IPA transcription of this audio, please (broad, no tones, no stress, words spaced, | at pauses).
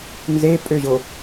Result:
nzepʼøʑo